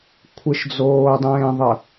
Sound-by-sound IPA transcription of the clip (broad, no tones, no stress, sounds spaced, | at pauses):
kʷʰ ɪ ʃ d͡z oː dˤ ẽː ðˤ ə